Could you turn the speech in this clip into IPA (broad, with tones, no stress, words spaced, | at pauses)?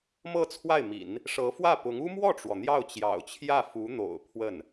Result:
mɤ˥˧t͡sʰwa˥˩ɪ̯mḭ˨˩˦n | ʂɤ˧˥fwä˥˩pʊ˧˥ŋ u˥mwɔ˥˩ʈ͡ʂwɔ˩ n̪jɑ˥˩ʊ̯t͡ɕjɑ̰˨˩ʊ̯t͡ɕʰjä˥˩ fu˧˥n̪o̰˨˩ʊ̯ pʰwə˥˩n